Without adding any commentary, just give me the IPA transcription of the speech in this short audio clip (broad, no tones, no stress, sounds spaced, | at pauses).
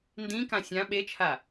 n d ĩ k ã sʲ ã ɓ e t͡ʃʰ a